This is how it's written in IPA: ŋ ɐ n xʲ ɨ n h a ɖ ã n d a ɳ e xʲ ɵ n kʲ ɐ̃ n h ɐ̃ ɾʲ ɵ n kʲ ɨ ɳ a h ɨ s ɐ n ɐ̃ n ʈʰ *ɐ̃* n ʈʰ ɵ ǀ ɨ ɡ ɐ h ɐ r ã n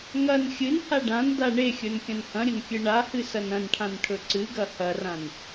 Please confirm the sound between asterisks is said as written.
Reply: no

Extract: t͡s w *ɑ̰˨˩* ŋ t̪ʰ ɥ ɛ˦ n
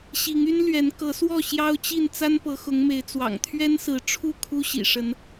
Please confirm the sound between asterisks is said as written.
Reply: yes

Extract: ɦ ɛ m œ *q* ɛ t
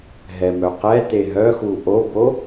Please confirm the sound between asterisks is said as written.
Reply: yes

